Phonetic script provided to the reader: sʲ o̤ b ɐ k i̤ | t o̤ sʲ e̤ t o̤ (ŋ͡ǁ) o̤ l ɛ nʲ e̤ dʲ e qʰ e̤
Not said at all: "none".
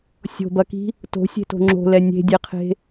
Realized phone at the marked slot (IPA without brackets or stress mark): ŋ͡ǁ